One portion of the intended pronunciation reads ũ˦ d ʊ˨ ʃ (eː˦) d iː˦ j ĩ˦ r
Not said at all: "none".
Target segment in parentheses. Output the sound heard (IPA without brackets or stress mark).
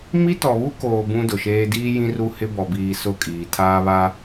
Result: eː˦